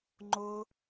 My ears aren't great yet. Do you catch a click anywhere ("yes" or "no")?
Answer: yes